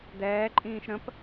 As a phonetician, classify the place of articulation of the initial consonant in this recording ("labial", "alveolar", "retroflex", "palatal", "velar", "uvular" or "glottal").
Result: alveolar